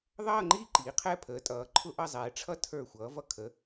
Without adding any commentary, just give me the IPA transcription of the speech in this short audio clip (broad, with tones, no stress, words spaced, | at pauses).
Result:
ðˤʌː˥˧ŋ͡ǃiː˥˧ ǃiː˩˧qʰɛ˥˧ pʰəː˩˧tʼʌː˩˧ǃʰʊ˥˧ʔʌ˥˧ zˤɛː˩˧ʈ͡ʂʰʌ˥˧ tʰə˞˧˩ xʷʌː˩˧vʌ˧˩ kʰə˩˧